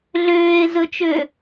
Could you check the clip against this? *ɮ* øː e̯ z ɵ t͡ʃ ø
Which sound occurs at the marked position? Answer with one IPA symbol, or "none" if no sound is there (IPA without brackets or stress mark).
ɮ